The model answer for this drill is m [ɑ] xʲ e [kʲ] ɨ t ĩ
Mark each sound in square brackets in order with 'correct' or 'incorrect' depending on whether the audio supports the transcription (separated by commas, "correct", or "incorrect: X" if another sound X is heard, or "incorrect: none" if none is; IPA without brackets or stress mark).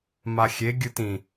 incorrect: a, incorrect: ɡʲ